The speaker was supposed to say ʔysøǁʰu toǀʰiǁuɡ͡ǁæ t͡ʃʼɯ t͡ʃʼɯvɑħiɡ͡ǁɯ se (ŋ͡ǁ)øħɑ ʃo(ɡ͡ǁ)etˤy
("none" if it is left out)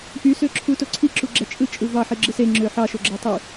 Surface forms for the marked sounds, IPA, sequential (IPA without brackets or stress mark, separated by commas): ŋ͡ǁ, ɡ͡ǁ